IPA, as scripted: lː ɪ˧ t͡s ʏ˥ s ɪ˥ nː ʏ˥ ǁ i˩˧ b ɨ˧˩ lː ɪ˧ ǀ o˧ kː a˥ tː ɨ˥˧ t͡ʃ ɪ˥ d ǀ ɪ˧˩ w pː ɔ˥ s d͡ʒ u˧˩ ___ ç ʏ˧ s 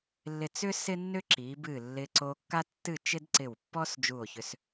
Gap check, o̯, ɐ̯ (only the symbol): o̯